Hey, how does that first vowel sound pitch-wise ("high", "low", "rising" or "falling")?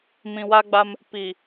low